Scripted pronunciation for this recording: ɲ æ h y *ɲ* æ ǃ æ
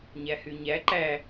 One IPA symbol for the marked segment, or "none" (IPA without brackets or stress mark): ɲ